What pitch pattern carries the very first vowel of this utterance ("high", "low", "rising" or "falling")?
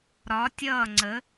rising